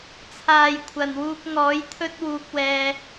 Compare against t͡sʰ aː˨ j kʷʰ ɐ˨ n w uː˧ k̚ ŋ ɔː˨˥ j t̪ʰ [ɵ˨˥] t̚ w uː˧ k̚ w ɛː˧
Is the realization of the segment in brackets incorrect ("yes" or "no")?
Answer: yes